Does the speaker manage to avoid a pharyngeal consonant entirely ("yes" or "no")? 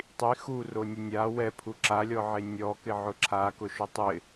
no